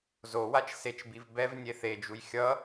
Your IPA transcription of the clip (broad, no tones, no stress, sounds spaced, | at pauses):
z o w a t͡ʃ s e t͡ʃ b i v b ɛ v nʲ e θ e d͡ʒ u j xʲ ʌ